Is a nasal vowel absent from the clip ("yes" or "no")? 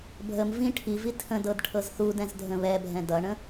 no